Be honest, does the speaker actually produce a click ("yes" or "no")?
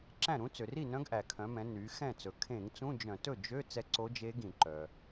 yes